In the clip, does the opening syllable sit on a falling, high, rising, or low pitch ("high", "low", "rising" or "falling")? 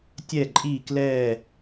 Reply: falling